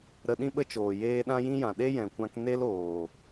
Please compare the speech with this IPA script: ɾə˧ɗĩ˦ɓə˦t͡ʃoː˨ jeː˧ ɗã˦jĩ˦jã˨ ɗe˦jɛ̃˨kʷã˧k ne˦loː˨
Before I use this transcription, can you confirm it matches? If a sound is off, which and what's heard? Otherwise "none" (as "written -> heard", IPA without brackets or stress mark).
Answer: none